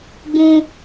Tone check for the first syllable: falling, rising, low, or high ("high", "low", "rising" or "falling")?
high